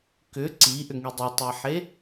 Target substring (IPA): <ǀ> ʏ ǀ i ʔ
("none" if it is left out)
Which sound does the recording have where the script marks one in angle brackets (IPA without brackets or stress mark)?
k